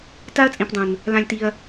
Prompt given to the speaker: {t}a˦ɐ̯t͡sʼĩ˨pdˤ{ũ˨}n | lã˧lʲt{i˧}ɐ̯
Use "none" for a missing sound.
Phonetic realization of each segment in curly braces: t, ũ˨, i˧

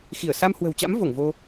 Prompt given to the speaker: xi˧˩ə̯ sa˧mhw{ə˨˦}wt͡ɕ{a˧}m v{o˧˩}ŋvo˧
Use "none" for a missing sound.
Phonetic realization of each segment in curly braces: ə̤˨˩, a̰˧˥, o˧˩

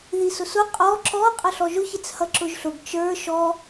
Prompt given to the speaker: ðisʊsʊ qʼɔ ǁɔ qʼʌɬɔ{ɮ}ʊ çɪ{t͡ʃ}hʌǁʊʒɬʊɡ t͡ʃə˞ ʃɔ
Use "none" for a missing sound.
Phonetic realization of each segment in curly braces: ʒ, t͡s

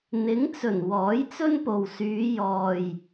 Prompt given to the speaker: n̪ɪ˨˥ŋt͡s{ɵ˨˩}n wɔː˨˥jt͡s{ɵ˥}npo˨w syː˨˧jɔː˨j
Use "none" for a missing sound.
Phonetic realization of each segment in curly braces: ɵ˨˩, ɵ˥

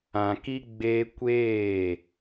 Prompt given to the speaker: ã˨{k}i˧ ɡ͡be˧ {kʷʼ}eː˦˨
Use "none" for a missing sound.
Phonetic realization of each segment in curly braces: k, kʷ

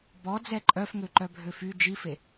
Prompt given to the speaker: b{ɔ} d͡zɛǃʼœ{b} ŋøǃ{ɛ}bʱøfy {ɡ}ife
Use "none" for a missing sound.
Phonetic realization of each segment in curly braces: ɔ, f, œ, d͡ʒ

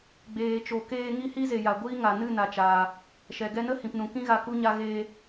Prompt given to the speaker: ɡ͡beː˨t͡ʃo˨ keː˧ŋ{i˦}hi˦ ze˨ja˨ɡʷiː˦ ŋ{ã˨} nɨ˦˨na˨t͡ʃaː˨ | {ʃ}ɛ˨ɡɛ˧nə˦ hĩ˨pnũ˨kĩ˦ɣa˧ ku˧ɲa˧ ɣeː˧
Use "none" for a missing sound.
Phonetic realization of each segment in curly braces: i˦, a˨, ʃ

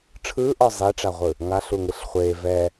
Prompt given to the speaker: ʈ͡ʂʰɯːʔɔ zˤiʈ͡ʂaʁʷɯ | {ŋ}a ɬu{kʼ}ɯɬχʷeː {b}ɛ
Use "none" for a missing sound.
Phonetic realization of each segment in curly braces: ŋ, ŋ, v

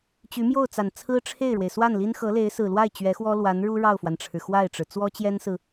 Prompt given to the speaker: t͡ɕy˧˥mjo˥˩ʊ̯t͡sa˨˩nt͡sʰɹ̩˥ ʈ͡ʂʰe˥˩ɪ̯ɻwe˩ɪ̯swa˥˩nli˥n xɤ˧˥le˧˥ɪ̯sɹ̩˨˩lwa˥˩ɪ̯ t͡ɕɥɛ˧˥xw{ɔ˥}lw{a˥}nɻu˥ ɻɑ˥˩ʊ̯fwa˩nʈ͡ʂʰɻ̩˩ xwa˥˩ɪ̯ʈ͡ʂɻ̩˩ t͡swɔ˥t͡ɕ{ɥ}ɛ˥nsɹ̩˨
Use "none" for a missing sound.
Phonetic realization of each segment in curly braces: ɔ˥, a˧˥, j

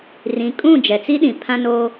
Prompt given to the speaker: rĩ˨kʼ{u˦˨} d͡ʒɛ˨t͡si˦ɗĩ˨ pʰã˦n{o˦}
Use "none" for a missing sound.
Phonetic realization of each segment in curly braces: ũ˦˨, o˦

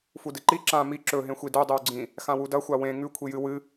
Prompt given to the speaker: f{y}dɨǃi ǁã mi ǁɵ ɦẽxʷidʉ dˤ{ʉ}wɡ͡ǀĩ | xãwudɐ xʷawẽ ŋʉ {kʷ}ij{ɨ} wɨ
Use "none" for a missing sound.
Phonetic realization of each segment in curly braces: u, ʉ, kʷʰ, ɨ

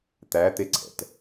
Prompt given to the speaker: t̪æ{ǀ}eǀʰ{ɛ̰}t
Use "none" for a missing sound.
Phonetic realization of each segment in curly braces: t̪, ɛ̰

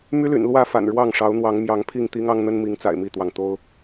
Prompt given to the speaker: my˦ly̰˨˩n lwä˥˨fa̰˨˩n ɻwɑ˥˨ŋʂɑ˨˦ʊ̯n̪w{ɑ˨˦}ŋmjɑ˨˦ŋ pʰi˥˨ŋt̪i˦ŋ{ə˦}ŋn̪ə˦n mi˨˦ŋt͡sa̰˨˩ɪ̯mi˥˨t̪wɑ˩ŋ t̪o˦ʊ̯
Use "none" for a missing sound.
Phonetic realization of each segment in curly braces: ɑ˨˦, ɑ˦

